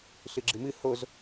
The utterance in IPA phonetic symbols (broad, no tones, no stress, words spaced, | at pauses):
ɬɨɡ͡ǁɨmɨ hoz